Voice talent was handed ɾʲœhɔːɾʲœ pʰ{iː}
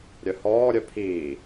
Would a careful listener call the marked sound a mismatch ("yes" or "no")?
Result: no